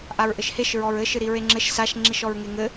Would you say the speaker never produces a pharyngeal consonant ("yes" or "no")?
yes